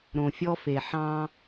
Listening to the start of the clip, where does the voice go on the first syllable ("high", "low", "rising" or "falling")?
low